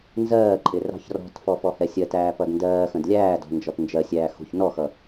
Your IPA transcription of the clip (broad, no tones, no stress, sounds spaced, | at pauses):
n z ɜː ǃʼ ɪ r ɑ̤ ç r ɔ̤ t f ɔ f ɔ h ɛ sʲ ɜ t æː p ʌ d n d ɜː x ə̃ d lʲ æː d ɔ̤ n d͡ʒ ɔ t n d͡ʒ ɜ sʲ æː x ṳ ç n ɔ x ʌ